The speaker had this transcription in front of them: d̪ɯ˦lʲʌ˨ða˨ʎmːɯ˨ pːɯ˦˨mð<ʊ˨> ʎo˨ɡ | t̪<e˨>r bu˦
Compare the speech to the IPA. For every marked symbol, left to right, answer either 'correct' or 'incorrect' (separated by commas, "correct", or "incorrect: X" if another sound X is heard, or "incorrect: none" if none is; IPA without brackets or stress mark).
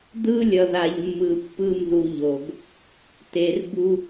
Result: incorrect: u˨, correct